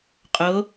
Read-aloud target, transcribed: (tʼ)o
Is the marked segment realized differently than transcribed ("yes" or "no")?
yes